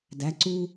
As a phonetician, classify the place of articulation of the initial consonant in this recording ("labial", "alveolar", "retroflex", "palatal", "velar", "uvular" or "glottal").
alveolar